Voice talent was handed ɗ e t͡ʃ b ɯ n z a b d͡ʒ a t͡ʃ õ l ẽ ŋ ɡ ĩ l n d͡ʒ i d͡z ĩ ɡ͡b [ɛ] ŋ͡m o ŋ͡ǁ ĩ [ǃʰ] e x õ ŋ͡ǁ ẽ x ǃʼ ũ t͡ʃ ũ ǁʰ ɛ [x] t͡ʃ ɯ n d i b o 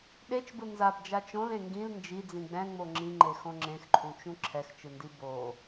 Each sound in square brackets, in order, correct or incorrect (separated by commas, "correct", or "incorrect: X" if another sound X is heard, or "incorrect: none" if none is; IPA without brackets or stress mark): incorrect: ɛ̃, incorrect: ŋ͡ǃ, correct